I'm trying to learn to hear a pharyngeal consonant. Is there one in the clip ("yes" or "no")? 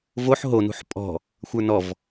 yes